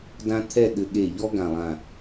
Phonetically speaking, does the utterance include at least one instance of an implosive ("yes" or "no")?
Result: yes